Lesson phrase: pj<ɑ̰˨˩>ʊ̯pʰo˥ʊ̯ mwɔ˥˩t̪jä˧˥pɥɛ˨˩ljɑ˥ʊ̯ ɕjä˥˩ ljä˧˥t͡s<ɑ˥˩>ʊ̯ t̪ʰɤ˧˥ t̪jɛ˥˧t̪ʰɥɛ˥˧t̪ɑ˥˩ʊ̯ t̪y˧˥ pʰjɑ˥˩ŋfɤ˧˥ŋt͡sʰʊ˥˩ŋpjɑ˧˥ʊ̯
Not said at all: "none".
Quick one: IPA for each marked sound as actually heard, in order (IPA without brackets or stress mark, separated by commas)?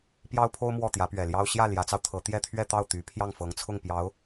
ɑ˥, ɑ˧